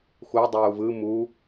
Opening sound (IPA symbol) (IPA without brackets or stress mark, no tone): x